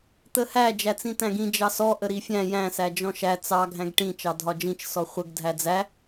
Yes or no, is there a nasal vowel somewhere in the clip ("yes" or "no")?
yes